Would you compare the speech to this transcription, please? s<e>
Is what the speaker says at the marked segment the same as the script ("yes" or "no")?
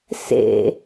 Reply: no